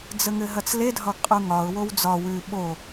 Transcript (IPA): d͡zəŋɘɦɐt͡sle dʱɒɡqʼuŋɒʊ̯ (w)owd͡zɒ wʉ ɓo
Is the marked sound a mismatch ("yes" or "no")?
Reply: no